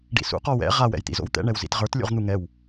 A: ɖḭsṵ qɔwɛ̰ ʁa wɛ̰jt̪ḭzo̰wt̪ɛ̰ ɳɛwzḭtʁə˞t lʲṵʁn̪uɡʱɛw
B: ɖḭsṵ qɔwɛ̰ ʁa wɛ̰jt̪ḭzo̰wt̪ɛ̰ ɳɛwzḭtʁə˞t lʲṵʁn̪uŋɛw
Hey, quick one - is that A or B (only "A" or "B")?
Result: B